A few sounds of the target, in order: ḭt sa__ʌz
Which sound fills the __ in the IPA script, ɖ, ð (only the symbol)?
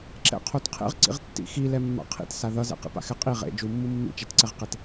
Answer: ð